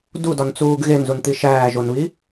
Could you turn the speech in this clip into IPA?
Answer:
d u d ɒ n t͡s uː ɡ ɣ e n z u n t̪ i ʃ æː ʒ o n β i

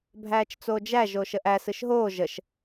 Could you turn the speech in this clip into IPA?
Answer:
bʱ æː t͡ʃ t͡s oː d͡ʒ æ ʒ oː ʃ ə ʔ æ s ɯ ʃ ɦ oː ʒ ə ʃ

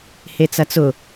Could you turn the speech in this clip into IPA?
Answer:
h e t͡s ɐ t͡s ʊ

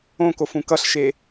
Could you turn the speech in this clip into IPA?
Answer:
õ k o f ũ k ʌ ɬ ʃ e

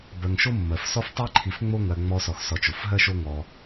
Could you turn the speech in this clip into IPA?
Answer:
b ɜ˨ ŋ ʃ o˥ mː ɜ˩ f s ɔ˥ f tˤ i˥ ǃʰ i˨ f ŋ͡m o˥ ŋ ɜ˨ ŋ͡m ɔ˦ s ɔ˨ x s ɔ˨ t͡ʃ o˩ f ɦ ɜ˥ ʃ o˦ ŋ ɔ˨

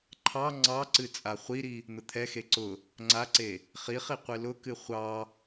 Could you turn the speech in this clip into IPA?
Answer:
ǃʰ ɑ ŋ͡ǀ ɑ ǀ ɨ t͡sʼ a χʷ i ɾ i | n̪ ʊ t̪ʰ ɛ x e ǀ ʊ | ŋ͡ǀ a ǀ e | χ i χ i qʷ ɨ l ʊ k ɨ χʷ ɑ

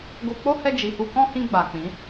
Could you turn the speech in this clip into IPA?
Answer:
ɡ o˧ k͡p o˦ h ɛ˧ d͡ʒ i˨ h u˧ k ɔ̃˦ h ĩ˧ ɡ͡b a˨ k͡p ĩ˨˦

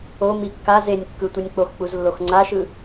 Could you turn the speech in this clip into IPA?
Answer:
o m i kː a z e nʲ kː ɯ tʷ i nʲ k͡p o x k͡p u z lː o x ŋ͡ǀ a ʃ ɯ

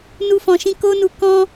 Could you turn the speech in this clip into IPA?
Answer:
n u˦ f ɔ̃˧ ʃ ĩ˦ k o˦ n u˧ k ɔ̃˧

